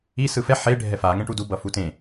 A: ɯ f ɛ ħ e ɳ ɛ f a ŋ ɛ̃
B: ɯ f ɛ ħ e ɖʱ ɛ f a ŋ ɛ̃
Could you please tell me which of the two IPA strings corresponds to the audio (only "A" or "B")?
B